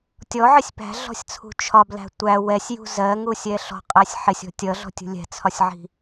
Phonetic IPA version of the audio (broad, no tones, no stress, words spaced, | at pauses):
tʲɔʕɪsʲ pæ̤ɮɔ̤sʲt͡sʰṳ t͡ʃʰɒblæ̤ tʷæ wɛsʲjṳ zɜŋusʲɛ ɬɔ̤qʼɛsʲ ħɪsʲɔ̤ tʲʌɮɔ̤tʲṳ lʲɛ̤t͡sʰɒsʲʕi̤